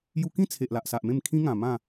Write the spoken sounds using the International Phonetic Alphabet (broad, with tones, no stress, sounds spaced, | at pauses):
j u˧ k ĩ˥˧ t͡sʰ e˨ ʔ l a˨ ʔ s a˨ ʔ m ẽ˥˧ m kʰ ĩ˦ ŋ ã˨˩ m ã˥˧